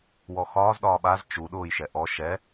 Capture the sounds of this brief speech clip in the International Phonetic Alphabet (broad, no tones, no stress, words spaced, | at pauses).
wɔxɒːz ɗɒːɓaz t͡ʃu ɗʊːj ʃɛʔɔ ʃɛ